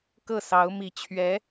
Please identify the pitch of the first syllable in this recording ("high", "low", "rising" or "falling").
falling